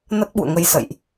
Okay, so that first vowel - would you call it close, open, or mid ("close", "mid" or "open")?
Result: mid